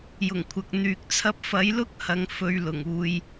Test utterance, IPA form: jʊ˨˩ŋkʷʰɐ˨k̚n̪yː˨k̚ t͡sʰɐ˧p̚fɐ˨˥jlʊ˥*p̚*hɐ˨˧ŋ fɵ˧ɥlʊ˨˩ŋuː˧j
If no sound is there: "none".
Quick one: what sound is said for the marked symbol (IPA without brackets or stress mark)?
k̚